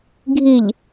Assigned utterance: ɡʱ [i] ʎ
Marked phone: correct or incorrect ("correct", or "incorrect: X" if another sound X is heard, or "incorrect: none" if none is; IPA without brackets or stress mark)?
correct